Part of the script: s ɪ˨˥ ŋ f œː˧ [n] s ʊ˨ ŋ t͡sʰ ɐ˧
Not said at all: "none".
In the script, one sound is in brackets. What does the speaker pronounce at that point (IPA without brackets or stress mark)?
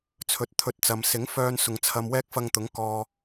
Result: n